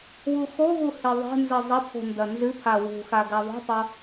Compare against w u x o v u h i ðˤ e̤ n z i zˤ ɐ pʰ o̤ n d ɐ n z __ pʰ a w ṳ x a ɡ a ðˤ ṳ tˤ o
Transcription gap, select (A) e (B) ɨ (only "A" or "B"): B